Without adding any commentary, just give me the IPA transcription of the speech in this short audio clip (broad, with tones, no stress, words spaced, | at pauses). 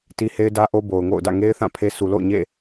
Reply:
ti˦he˦ɪ̯dä˦ʔo˦ bo˨ʊ̯ŋo̰˦˨ʊ̯dä̰˦˨ ŋe˦ɪ̯θã˦˨ pʰe˦ su˨lo̰˦˨ʊ̯ ɲḛ˦˨